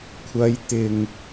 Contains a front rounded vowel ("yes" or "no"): no